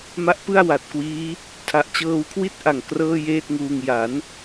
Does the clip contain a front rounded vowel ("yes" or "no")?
no